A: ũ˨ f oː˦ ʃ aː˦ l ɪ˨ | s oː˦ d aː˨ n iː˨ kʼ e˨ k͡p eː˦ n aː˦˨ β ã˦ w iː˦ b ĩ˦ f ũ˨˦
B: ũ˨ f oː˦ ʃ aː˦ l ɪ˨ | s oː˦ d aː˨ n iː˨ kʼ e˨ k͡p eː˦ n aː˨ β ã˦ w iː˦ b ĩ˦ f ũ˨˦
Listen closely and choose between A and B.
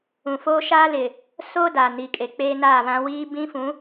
A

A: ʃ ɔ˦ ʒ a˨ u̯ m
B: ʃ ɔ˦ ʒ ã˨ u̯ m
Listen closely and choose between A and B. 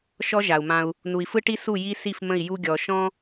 A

